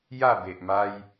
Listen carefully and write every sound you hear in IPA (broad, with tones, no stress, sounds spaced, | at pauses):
j a˥˧ b e˨ ʔ m a˧ j